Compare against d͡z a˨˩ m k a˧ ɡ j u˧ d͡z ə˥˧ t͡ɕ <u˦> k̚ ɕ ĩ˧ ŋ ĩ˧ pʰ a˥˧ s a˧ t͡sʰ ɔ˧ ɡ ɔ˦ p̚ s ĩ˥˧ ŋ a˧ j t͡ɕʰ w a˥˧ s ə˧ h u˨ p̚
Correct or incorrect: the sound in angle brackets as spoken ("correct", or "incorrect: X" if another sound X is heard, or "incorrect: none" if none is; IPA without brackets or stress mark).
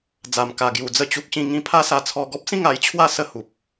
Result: correct